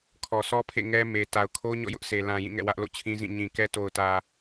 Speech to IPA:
kʰ ɔ˨ s ɔ˦ pʰ ḛ˦˨ ŋ ɛ˦ m e˨ t a˨ ʊ̯ kʰ o˦ ɲ ɔ̰˦˨ j ʊ˦ ʔ s e˨ l ã˨ j ĩ˦˨ ŋ ɛ̰˦˨ w ä˦ ʔ l o̰˦˨ t͡ɕʰ ĩ˦ z ĩ˦˨ ɲ ĩ˨ k ɛ˦ t o˨ ʊ̯ t ä˨

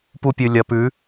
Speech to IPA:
p u˧ pʲ ɨ˨ lʲ ɐ˨ p ʉ˨˦

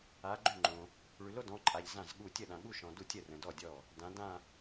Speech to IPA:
a˨˦ ɡ͡ǃ ʉ˥˩ ŋ͡ǃ õ˨ | ɭ ʉ˨ l o˥˧ d ɔ̃˨˦ ǃʼ a˨ ʎ z ã˥˩ z ɠ u˥˩ tʲ ə˥˩ ɗ ã˨ ɠ u˥˧ ʃ ɔ̃˨ d u˥˩ tʲ ə˥˩ r ə̃˨ d ɔ˥˩ dʲ ɔ˥˩ | d ã˨˦ d ã˥˧

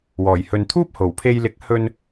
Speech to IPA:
w ɔː˨˩ j h ɵ˨ n t̪ʰ uː˥ p̚ h o˨˩ w pʰ e˧ j l ɪ˨˥ k̚ h ɵ˧ n

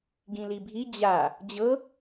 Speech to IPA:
ɡ ĩ l i bʱ i d͡ʑ a | d͡ʑ ɤ

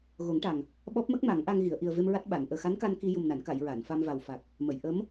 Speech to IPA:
ɣ o˨˩˦ ŋ ʈ a˨˩ ŋ | ɓ ɔ˦˥ p̚ m ə˦˥ k̚ m a˨˩˦ ŋ ʔ a˧ ŋ ɣ i˨˩˨ ə̯ ʔ i˨˩ ə̯ v e˧ m ɹ a˦˥ t̚ ɓ a˨˩˨ n ʔ əː˨˩ x a˧˥ n k a˧ n k i˧ j u˨˩ m n a˨˩˨ n k a˨˩˨ j ɹ a˨˩˨ n f a˧ m v a˨˩ w f a˨˩ k̚ | m ə˨˩˨ j ʔ ə˧˥ m

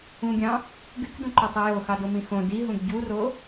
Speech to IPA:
ũ ɡʲ ɑ̃ | ɡ y k d ũ ǃ o tˤ i j o x ɑ d o m ĩ x õ d i ɦ ũ ɡ ɟ u r o

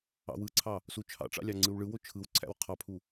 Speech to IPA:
ɑ̰ w ɯ ǀʰ ɑ | s u t͡ʃʰ ɑ̰ ʈ͡ʂ ɑ̰ lʲ ɑ ŋ͡ǀ ɯ w ɭ ɯ w o t͡ʃʰ ɯ w ǀʰ æ̰ w qʰ ɑ pʰ u

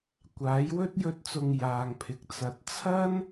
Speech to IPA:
kʷ aː˨˥ j w ɵ˥ t̚ j ɵ˥ t̚ t͡s ʊ˧ ŋ j aː˨ ŋ pʰ ɪ˨ k̚ t͡s ɐ˨ t̚ t͡sʰ ɐ˥ n

